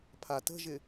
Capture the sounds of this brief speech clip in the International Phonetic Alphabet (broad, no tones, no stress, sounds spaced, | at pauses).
pʰ a t ə̤ ʒ ɪ